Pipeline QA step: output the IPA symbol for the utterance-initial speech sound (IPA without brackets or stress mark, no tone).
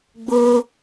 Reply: ɡ͡b